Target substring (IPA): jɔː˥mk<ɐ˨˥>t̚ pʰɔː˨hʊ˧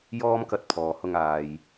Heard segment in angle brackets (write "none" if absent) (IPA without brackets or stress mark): ɐ˧